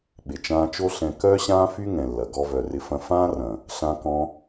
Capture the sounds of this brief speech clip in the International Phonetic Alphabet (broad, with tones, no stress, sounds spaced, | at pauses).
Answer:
ɓ ɪ˨ t͡ʃ ãː˧ t͡ʃ o˦ ɬ ɛ̃˧ k œː˦ ɕ ãː˦ f y˦ ŋ ɛ̃˨ lː ɐ˨ ɡ ɔ˧ v œ˨ r ɪ˧ f ɐ̃˧ f ãː˦ r ɐ̃˨ | ɬ ã˧ k ɔ̃˧